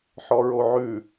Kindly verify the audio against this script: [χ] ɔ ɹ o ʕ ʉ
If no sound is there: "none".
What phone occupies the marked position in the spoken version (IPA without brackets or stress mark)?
ħ